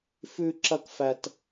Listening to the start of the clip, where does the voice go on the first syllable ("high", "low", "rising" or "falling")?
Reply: high